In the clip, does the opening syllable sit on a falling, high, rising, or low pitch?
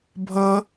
high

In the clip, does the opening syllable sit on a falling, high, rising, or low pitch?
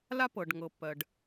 high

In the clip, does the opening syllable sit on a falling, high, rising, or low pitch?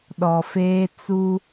low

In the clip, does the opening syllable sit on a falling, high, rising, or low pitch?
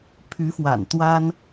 rising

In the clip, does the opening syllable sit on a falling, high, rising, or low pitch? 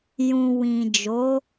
low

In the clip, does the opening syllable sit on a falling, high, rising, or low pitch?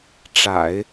low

